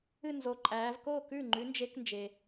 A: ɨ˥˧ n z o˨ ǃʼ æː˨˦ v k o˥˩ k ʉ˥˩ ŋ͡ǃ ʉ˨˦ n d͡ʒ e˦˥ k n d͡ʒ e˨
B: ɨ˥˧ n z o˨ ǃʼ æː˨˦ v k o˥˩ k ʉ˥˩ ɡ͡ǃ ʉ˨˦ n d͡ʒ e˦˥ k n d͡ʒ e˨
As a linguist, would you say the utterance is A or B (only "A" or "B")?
A